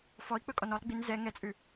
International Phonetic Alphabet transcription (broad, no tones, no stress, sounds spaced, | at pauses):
f ɔ i̯ k͡p ɵ kʼ ɔ n ɔ lˠ ɡ͡b i n z ɛ ŋ ɛ t͡sʼ ʉ